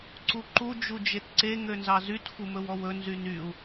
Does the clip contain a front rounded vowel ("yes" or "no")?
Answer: yes